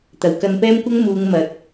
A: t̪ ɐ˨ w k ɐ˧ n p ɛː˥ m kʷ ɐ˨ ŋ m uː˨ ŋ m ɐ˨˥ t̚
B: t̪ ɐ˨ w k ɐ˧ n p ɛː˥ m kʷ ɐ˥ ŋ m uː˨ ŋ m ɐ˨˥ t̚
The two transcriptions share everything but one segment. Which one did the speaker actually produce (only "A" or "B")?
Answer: B